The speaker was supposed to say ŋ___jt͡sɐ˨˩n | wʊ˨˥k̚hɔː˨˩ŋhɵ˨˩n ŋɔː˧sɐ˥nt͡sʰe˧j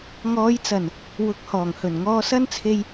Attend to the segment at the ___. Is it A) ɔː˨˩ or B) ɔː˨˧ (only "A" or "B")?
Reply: B